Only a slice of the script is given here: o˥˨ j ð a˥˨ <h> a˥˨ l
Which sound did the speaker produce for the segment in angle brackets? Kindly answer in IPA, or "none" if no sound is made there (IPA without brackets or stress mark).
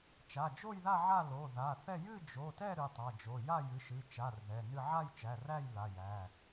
ʕ